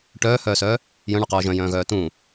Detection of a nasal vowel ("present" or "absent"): present